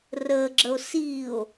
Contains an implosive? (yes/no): no